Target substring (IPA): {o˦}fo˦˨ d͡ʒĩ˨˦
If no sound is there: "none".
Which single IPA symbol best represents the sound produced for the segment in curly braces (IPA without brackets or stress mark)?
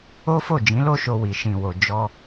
o˦